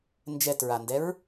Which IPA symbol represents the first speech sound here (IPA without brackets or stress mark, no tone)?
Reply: n